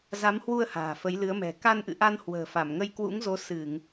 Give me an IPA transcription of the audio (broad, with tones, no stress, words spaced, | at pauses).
za˨˦mhwu˧ə̯ ha̤ː˨˩fə˨˦j lɨ˨˦ə̯mɛ̤˨˩ ka˧nʔɨ̰˧˨ʔa˧nhwə̤ː˨˩ fa˧˩mŋə˧jkwṵ˧˥ŋzo˨˦ sɨ˧˩˨ŋ